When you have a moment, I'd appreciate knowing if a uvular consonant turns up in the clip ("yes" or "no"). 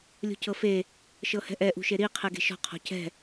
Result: yes